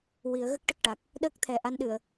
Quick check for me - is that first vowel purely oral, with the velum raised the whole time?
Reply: yes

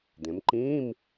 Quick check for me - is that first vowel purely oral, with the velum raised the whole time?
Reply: no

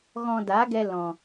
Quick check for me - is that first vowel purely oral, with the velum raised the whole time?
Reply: no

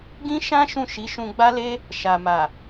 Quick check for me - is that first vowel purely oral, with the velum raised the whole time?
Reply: no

